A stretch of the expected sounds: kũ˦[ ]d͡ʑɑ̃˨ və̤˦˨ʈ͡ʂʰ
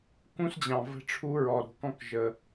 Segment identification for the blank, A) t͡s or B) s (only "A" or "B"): B